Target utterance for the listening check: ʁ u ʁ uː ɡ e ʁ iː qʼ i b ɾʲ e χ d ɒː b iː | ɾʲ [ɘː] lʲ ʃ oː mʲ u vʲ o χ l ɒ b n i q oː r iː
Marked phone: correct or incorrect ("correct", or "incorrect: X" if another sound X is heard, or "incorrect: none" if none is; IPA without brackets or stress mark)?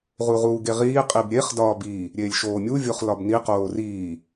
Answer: incorrect: eː